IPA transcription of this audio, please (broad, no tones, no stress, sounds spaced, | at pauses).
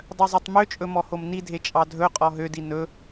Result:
dˤ œ zˤ e tˤ m ø t͡ʃʼ ɵ m ɔ h o m n i dʱ e t͡ʃʼ ɑ dʱ ɵ qʼ ɔ ɦ ø d i n ɵ